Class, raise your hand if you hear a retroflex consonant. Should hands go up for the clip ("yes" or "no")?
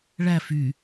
yes